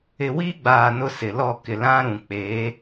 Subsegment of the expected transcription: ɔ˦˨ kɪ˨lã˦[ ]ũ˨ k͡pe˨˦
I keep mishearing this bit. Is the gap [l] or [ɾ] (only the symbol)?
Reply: ɾ